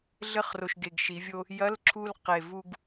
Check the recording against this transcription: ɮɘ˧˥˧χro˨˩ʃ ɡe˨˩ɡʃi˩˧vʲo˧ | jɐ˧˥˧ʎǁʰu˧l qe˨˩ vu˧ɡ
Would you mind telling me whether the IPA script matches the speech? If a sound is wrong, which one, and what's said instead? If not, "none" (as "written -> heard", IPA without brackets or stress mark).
ʎ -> l